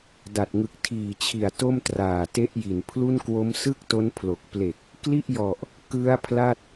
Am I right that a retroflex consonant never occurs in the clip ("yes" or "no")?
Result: yes